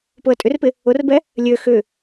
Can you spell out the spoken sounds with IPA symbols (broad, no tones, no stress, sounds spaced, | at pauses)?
p ʊ ə̯ tʼ ʏ r p ɪ | ʊ r b ɛ | lʲ ø x ʏ